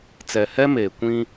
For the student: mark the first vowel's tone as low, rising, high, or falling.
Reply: low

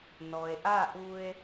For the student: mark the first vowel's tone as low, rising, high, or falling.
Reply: low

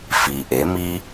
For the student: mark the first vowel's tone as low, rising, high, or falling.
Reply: low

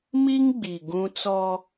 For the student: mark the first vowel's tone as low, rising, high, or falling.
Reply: high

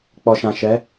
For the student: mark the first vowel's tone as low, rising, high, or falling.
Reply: low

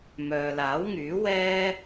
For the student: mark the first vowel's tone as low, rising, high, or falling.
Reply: low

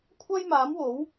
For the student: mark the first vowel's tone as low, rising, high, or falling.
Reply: high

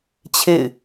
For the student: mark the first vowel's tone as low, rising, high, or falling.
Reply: falling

